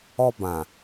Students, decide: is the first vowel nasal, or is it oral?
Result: oral